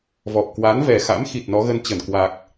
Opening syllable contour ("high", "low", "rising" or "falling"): low